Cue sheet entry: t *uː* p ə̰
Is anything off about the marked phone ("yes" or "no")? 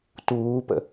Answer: no